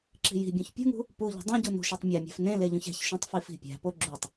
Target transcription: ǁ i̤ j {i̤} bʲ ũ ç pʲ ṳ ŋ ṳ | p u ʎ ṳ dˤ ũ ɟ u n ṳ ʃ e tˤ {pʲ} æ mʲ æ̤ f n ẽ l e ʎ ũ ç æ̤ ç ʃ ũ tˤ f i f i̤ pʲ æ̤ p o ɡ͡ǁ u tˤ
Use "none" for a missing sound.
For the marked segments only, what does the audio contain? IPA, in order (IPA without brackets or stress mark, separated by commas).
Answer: i̤, mʲ